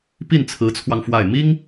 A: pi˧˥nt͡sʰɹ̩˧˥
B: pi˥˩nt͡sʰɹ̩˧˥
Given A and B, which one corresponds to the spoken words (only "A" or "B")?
B